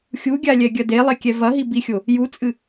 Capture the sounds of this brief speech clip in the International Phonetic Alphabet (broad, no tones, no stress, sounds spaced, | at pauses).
xʲ u ɡʲ a lʲ ɛ ɡʲ ɐ d e lˠ e kʲ ɛ v ɐ ɦ i b i xʲ o | j u t͡sʼ ɨ